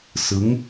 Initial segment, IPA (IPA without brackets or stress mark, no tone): s